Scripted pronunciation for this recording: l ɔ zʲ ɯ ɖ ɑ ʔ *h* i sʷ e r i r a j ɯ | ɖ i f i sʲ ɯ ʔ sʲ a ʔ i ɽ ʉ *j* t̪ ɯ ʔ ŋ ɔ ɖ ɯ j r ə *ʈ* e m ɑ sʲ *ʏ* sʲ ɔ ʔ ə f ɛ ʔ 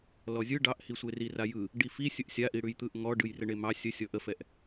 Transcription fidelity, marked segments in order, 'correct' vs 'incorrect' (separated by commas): correct, correct, incorrect, incorrect